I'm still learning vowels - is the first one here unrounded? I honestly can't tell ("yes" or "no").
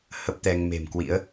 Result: yes